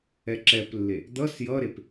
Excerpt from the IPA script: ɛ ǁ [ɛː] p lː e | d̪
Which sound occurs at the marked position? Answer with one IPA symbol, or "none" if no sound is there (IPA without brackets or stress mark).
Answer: ɛ